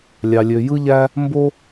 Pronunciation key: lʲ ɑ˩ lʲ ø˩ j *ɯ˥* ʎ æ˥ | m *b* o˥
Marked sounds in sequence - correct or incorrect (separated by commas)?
correct, correct